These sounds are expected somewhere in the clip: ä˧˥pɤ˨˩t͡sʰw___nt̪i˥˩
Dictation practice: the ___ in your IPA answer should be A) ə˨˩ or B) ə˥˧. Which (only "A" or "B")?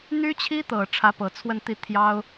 B